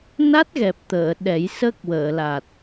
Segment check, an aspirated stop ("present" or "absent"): absent